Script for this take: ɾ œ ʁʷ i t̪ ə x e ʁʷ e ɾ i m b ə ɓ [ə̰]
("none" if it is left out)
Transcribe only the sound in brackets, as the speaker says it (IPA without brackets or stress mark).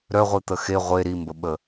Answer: ə